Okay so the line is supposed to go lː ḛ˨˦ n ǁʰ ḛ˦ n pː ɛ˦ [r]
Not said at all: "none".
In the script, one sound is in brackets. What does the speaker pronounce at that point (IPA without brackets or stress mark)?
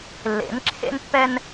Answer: n